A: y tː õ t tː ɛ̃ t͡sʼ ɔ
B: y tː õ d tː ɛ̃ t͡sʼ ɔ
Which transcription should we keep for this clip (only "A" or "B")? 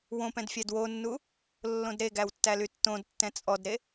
B